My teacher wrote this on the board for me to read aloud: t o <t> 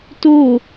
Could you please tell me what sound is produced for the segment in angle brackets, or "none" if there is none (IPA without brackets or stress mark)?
none